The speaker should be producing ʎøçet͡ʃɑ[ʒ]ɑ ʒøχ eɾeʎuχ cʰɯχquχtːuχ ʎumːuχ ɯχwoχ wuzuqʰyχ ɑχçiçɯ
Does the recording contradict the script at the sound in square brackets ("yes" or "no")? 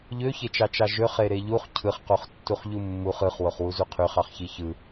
yes